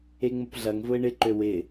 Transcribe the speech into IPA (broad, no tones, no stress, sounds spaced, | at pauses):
e ŋ͡m ʊ p ɮ ɐ ŋ v ʊ ɪ̯ ɳ ɪ ǃ ø w ɪ